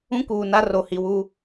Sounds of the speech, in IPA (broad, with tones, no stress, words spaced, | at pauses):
ũ˦kuː˨na˦ ro˨ hi˨wu˦